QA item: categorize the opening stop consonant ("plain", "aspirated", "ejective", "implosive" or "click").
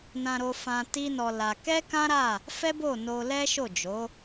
plain